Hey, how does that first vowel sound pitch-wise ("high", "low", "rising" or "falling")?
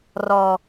high